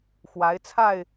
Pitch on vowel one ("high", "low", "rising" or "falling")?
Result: rising